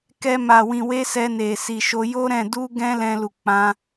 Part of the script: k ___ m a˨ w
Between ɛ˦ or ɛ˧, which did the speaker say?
ɛ˧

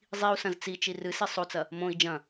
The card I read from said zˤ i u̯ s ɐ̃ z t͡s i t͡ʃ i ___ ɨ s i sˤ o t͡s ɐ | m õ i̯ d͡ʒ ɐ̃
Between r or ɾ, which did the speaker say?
r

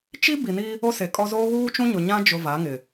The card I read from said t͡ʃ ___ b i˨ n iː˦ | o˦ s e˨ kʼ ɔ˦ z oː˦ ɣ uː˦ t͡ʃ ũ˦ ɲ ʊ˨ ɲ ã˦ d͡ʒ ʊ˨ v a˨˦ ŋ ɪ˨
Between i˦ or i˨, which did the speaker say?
i˦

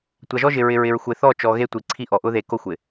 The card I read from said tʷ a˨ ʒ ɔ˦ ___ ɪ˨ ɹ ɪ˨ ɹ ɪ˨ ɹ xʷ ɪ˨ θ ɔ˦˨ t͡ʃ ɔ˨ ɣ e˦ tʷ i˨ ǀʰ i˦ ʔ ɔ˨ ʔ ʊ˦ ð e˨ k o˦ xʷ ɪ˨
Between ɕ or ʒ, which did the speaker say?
ʒ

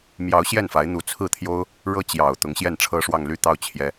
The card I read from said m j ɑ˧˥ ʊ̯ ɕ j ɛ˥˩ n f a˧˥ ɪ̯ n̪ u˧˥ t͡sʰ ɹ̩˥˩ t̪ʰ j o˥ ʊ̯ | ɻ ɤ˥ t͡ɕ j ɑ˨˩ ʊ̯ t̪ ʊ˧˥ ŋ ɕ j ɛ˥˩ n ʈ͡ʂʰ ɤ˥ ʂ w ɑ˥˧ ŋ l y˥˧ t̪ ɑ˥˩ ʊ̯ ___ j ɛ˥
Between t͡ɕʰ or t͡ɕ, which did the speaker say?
t͡ɕʰ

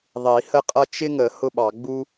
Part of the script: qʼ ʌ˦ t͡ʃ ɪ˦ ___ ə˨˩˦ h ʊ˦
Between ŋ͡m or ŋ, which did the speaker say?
ŋ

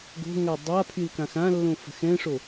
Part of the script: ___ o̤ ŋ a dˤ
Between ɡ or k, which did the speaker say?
ɡ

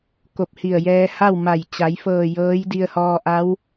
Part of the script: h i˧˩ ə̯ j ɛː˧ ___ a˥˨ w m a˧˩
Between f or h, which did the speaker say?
h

